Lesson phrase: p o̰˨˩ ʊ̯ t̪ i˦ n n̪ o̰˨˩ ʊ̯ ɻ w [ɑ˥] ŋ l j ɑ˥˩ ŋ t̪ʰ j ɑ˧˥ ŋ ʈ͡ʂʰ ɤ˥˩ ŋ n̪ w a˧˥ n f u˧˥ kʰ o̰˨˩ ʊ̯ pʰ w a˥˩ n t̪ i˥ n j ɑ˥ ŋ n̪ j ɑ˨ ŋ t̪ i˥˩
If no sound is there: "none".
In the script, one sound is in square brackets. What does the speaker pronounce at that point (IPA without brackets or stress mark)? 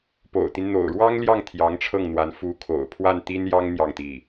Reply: ɑ˥